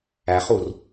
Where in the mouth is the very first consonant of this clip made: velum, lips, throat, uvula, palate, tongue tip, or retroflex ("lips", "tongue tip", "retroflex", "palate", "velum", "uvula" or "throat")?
uvula